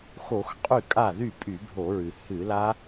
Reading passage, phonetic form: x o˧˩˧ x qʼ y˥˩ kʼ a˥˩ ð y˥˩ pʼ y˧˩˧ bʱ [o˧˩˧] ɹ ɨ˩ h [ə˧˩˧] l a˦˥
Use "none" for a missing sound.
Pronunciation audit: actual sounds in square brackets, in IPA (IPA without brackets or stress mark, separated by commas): o˧˩˧, ɨ˧˩˧